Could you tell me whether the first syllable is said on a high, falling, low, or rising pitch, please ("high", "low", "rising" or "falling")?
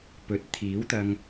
rising